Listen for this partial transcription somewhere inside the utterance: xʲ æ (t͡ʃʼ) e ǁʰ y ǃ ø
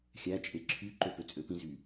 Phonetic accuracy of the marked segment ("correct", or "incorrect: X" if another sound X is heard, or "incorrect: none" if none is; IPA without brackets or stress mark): correct